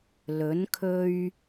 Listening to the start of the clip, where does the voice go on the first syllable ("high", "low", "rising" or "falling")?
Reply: rising